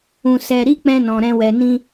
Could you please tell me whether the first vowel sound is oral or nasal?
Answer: nasal